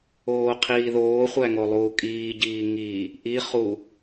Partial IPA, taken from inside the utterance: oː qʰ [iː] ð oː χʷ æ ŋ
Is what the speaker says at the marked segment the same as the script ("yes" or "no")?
yes